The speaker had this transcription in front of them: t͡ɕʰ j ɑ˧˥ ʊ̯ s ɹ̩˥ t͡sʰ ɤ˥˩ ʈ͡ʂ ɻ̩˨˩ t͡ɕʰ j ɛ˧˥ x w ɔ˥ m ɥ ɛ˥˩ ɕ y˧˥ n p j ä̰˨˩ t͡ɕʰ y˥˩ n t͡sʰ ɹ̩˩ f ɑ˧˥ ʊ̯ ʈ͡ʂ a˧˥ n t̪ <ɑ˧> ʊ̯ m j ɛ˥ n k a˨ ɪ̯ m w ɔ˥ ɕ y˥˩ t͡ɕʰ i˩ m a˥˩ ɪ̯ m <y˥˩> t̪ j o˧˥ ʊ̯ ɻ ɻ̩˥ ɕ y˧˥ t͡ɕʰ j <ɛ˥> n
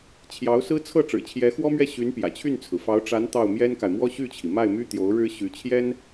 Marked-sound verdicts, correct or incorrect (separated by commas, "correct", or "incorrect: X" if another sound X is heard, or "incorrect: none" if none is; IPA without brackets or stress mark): incorrect: ɑ˥˩, incorrect: y˥, correct